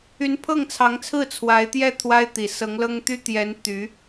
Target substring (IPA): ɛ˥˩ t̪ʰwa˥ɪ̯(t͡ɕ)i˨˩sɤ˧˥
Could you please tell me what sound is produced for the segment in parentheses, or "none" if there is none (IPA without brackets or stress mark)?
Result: t̪